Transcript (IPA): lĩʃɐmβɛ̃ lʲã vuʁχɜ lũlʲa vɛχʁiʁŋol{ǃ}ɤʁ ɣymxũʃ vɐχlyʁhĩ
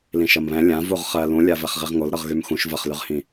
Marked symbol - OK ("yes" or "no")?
no